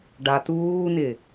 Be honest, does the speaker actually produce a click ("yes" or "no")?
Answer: no